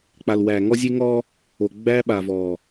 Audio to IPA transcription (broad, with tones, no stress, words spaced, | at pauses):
k͡pa˨lwæː˨ ŋɔ˦zʲe˦ ŋɔː˦ | o˨ɡ͡bæː˦ɓa˨vɔː˨